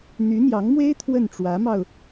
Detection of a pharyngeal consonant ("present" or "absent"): absent